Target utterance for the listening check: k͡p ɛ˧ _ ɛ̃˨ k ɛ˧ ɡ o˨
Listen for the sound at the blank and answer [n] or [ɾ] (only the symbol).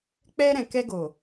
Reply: ɾ